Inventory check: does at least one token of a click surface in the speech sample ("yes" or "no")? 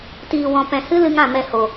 no